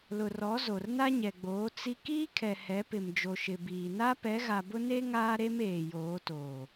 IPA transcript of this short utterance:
l ʊ˨ r ɔ˨˦ z o˨ r n a˦ ɲ ɛ˨ ɡ͡b oː˨˦ t͡s i˦ k iː˦ kʰ ɛ˨ h ɛ˨˦ p ɪ˨ m d͡ʒ o˨ ʃ ɪ˨ b iː˨ n a˦ p ɛ˨˦ ɣ a˨ b ʊ˦ n e˦ ŋ aː˦ ɾ e˦ m eː˨ j oː˨˦ t oː˨

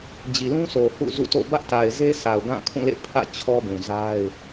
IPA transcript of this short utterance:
d͡ʑ i˨ l ũ˦ sʰ o˨ h ṵ˦˨ z ṵ˦˨ t o̰˦˨ b ä˦ ʔ t a˨ ɪ̯ z e˦ s a˨ ʊ̯ ɡ ã˦˨ kʰ ũ˦˨ l ḛ˦˨ pʰ ä̰˦˨ t͡ɕʰ ɔ˦ b ũ˨ z a˦ ɪ̯

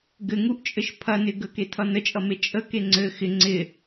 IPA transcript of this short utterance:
ɡ ɘ ŋ u ʔ t͡ʃʼ ɘ ʃ pʰ ɐ n ɪ ɡ ə k e tʰ ʌ n ə t͡ʃʼ ʌ m e t͡ʃʼ ə k e ŋ͡ǀ ɘ x ɪ ŋ͡ǀ ɪ

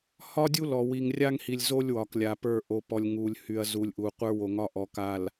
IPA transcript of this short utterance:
h ɒ˦ dʲ u˦ l ɔ˨ w i˨ ŋ rʲ a˦ ŋ h i˨ lʲ z o˦ lʲ w ɒ˨ k lʲ a˨ p ə˞˦˨ ʔ o˨ p ɔ˨ lʲ ŋ u˨ lʲ h y˨ ɐ̯ z u˨ lʲ ʔ u˨ qʷ ə˞˦ w o˨ ŋ ɒ˦ ʔ ɔ˨ k a˨ l

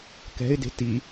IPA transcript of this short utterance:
k ɛ̤ ɪ̯ d e̤ t i

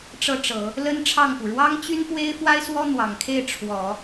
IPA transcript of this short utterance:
ʈ͡ʂ ɤ˥˩ ʈ͡ʂ ɤ˨˩˦ | l ə˥ n ʈ͡ʂʰ ɑ˥˩ ŋ p u˩ ɻ w ɑ˥ ŋ t͡ɕ y˥ n p w e˥ ɪ̯ f w a˥ ɪ̯ s w ɔ˥ n̪ w ɑ˨˩ ŋ kʰ e˥˩ ɪ̯ ʈ͡ʂʰ w ɔ˨˩˦

